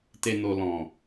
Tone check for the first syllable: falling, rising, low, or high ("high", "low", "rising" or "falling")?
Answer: low